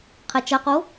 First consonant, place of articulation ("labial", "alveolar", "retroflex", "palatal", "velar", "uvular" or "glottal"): uvular